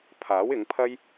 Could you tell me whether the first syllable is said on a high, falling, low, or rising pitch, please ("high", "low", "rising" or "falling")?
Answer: rising